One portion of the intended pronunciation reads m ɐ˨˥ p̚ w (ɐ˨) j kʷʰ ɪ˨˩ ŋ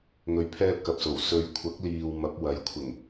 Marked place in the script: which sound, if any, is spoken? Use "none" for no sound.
ɐ˨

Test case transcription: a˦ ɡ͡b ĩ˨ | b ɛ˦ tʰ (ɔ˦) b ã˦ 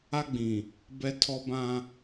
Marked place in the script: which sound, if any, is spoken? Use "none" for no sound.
ɔ˦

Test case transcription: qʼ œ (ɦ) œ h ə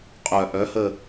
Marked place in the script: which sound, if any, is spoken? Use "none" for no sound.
ʔ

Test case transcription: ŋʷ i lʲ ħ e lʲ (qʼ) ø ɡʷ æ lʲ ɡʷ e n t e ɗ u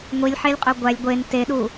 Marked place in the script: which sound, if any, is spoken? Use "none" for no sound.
qʼ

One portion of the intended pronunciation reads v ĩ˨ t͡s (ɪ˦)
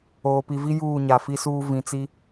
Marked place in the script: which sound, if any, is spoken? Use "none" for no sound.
i˦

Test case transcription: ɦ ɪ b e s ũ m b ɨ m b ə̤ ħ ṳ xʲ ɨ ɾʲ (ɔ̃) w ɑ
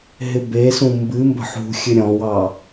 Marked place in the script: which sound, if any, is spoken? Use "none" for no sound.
ɔ̃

